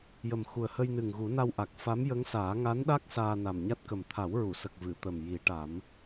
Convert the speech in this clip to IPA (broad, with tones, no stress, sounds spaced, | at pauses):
j ə˨˩ m x u˨˩ ə̯ h ə˧ j n ɨ˨˩ ŋ ɣ u˨˩˦ n a˧ w ʔ a˨˩ k̚ f a˧˥ m j ə˧˥ ŋ s aː˨˩˦ ŋ a˧˥ n ɗ a˦˥ k̚ s aː˧ n a˨˩ m ɲ a˦˥ t̚ k ə˨˩ m t̪ʰ a˨˩˦ w ɹ u˨˩˨ s ə˨˩ k̚ v ɨ˨˩˨ t̪ ə˨˩ m j i˨˩˦ ʈ a˨˩˦ m